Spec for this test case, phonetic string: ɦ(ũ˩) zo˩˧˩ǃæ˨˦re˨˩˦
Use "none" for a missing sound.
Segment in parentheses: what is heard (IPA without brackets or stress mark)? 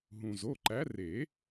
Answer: ũ˩